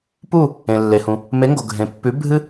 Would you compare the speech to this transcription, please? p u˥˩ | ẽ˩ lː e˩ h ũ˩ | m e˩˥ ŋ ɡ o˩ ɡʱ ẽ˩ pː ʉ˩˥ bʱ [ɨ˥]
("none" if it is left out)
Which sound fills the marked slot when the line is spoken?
ɨ˥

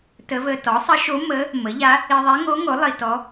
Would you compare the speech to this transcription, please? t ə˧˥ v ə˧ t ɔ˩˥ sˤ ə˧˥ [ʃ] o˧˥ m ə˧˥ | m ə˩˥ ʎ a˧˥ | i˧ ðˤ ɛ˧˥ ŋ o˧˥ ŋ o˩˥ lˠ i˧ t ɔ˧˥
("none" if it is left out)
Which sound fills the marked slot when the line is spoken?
ʃ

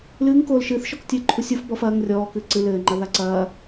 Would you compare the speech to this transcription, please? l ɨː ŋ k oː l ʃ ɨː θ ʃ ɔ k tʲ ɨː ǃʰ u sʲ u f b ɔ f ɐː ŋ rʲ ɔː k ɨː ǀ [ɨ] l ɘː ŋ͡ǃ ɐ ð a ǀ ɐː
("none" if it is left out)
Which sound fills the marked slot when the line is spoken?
ɨ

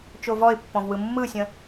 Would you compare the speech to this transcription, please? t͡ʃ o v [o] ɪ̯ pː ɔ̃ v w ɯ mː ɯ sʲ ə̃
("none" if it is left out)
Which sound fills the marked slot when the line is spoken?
ɔ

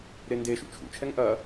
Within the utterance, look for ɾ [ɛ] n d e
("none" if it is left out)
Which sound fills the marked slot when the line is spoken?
e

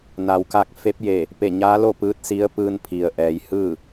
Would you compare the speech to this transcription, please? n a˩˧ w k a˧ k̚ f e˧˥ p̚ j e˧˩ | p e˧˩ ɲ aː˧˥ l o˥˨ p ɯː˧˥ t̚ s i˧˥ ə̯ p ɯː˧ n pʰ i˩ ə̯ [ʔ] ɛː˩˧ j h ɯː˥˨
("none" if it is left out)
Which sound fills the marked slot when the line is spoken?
ʔ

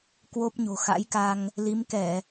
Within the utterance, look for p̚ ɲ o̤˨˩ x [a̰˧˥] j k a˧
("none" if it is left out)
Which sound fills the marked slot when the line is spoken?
a̰˧˥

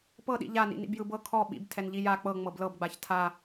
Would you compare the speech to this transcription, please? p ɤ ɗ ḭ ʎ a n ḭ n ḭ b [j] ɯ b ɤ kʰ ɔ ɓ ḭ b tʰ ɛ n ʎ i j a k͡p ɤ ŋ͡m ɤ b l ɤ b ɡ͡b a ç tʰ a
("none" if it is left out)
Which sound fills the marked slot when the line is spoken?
j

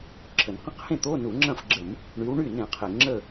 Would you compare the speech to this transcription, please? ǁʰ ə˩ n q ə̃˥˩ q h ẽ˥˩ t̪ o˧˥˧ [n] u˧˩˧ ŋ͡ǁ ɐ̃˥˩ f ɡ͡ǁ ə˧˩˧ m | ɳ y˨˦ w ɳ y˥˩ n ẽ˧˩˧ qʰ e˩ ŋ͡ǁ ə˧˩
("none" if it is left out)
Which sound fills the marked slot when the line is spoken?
n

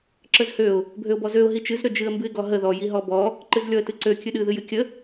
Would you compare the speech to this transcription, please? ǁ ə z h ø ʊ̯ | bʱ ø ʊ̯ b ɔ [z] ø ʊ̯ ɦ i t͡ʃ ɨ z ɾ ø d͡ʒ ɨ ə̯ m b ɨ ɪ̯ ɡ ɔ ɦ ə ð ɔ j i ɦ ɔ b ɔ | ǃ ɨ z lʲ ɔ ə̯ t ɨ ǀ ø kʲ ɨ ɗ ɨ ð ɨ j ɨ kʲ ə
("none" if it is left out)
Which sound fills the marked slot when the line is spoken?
z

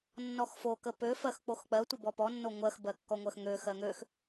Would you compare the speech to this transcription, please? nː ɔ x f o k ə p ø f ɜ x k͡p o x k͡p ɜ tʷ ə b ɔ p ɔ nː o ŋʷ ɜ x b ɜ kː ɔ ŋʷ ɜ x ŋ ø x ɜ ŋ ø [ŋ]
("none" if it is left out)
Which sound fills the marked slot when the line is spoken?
x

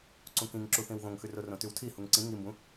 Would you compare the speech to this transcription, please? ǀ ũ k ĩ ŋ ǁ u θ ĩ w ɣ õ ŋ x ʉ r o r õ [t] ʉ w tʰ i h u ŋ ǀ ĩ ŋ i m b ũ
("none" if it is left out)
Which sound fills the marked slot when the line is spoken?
t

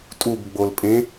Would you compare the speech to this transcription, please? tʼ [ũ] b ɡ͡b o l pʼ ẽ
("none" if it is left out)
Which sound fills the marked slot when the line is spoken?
u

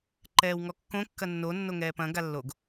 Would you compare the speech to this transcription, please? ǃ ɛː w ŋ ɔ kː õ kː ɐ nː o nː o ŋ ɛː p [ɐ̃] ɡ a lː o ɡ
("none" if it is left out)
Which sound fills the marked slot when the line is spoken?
ɐ̃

